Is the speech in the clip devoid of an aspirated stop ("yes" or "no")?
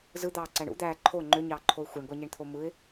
no